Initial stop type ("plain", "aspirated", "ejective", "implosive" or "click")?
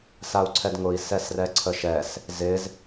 click